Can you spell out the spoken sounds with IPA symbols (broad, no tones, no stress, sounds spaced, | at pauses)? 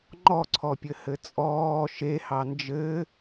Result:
ŋ͡ǃ ɔ ǀʰ ɔ pʲ ɘ h ɘ t͡sʼ ɔː ʃ e h ɑ n d͡ʒ ɘ